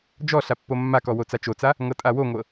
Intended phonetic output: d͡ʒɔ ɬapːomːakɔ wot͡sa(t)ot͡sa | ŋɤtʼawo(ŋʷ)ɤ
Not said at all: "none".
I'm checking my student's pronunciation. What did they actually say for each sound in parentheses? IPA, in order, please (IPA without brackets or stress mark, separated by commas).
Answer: t͡ʃ, ŋʷ